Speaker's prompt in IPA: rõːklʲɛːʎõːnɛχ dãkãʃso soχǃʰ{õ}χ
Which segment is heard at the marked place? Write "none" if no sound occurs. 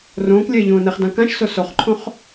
õ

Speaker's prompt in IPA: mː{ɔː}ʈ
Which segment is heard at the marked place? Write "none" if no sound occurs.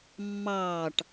ɑː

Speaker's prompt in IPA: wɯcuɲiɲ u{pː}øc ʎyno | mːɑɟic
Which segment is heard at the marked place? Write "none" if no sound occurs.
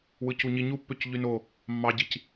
pː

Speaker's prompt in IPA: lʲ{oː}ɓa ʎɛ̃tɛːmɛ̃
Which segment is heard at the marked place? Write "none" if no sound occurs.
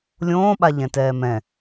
õː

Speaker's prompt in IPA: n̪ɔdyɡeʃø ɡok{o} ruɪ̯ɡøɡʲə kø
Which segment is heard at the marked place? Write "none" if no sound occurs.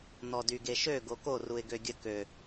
o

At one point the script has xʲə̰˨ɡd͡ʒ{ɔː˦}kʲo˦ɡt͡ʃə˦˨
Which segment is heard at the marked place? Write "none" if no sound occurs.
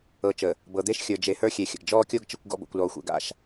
ɔː˦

